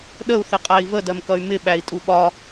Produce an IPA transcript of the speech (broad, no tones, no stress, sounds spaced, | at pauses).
ɗ ə u̯ θ ɪ qʼ æ i̯ v ə d ɜ m k ʌ y̯ m ɪ ɓ æ i̯ tʼ u ɓ ɒ